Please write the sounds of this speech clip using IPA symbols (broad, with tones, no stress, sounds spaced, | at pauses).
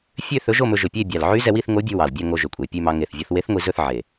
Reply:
fʲ ø˥˨ θ ɵ˧˥ ʒ o˥˨ m ɵ˧ ʒ ɵ˨˩ pʲ e˥˨ bʲ ɑ˨˩ l ʕ y˧˥ z ɛ˧ w i˥˨ θ ŋ o˧˥ bʲ ʉ˧ w ɑ˨˩ l bʲ æ˥˨ ŋ o˧ ʒ ø˨˩ kʷʼ e˨˩ pʲ ʉ˥˨ m ɑ˧ ŋ e˨˩ θ vʲ o˧ θ w e˧˥ θ ŋʷ i˧ z ɵ˥˨ θ ʕ e˨˩